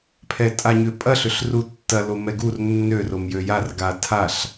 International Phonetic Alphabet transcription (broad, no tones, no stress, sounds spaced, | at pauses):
pʰ ɛ tʼ a ɲ ʏ pʼ ɐ ɬ ʏ ɬ r u tː ɐ l o m ɛ ɡ u r nː ø r o m j ø j a r ɡ a tʰ a ɬ